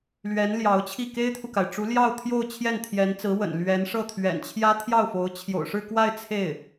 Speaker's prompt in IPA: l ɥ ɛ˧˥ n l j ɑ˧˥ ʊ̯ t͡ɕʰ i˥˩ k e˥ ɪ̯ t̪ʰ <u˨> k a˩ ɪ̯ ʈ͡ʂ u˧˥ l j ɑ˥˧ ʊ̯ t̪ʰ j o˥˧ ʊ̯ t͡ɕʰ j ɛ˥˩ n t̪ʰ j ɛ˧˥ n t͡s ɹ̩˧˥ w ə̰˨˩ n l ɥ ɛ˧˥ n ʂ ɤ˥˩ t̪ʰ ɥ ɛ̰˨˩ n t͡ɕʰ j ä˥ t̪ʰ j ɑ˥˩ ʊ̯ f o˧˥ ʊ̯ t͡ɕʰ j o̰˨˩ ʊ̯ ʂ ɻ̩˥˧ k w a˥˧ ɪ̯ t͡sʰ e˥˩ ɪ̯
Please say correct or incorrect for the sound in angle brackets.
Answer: correct